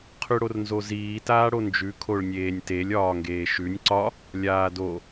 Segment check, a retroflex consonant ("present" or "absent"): present